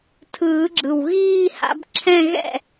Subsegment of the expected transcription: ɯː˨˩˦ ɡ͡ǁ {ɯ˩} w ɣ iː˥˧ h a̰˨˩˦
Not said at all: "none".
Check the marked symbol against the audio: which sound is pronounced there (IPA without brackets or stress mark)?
ɯ˩